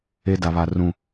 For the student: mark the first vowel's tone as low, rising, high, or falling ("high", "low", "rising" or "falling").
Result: high